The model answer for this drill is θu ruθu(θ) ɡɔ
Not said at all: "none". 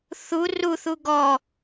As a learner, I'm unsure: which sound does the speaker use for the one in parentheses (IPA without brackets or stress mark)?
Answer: none